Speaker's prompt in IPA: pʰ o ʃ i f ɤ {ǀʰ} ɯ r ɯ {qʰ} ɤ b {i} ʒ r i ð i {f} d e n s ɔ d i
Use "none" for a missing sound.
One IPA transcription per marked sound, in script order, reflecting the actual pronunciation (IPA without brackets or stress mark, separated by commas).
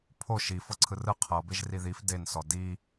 ǀʰ, qʰ, e, f